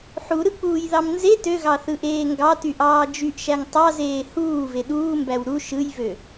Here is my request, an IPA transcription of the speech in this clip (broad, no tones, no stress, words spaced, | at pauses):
ħuɾɯk͡puːjðɑm nze tøɣɑθɯʔeː ŋɡɑtyʔɑː d͡ʒyʔʃæŋ tˤɑzeː huːve ɗuːmbæw ɾu ʃɯjvø